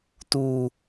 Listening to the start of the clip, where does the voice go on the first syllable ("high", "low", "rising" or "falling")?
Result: low